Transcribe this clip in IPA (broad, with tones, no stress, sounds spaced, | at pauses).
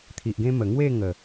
t̪ʰ i˨ ʔ ɡ ẽ˦ m ə˨˩ ŋ w e˥˧ ŋ ə˨˩